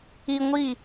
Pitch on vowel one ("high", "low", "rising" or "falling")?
high